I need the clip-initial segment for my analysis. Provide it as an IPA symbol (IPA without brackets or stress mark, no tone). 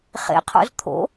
χ